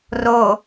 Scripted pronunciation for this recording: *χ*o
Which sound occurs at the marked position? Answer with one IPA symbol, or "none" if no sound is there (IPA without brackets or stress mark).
r